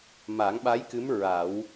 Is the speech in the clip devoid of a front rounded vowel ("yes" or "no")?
yes